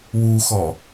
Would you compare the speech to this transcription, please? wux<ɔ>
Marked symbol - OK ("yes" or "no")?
yes